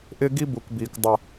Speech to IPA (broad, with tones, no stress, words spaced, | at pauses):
ʔɪː˦ɡi˦bu˨kbiː˨k dˤə˦˨